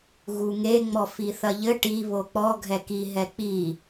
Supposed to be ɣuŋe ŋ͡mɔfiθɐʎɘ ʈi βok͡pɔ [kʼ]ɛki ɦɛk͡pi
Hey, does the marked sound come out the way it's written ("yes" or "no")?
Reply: no